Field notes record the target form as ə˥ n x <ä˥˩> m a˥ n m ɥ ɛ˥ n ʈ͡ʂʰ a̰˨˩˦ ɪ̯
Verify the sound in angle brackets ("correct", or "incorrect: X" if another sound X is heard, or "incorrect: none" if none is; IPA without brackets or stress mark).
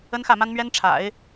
correct